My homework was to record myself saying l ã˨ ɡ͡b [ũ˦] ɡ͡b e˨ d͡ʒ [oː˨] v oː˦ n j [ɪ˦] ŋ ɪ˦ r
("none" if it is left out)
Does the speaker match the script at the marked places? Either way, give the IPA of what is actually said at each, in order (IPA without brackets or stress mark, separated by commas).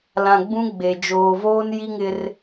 ũ˦, oː˨, i˦